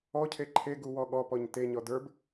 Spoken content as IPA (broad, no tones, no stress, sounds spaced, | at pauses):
ɔ cʰ e ǃʰ e ɡ u w ɔ ɠ ɔ p ɔ ɲ t e ɲ ɔ d ə˞ b